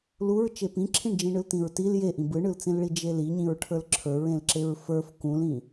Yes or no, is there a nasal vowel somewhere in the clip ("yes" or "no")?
yes